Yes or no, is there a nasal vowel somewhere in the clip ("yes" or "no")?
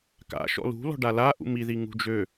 no